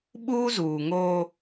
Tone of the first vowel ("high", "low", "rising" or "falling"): high